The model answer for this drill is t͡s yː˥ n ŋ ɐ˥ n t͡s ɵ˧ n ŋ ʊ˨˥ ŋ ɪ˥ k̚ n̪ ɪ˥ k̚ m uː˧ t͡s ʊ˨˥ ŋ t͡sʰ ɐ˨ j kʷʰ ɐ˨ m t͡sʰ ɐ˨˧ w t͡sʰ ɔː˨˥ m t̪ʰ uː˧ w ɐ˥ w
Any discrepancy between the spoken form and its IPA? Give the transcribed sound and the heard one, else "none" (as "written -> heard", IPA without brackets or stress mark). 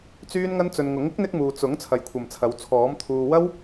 none